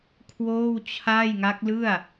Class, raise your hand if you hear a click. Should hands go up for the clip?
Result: no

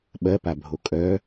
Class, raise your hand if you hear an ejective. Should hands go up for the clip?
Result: yes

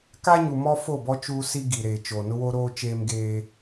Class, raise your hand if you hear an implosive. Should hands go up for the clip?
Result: no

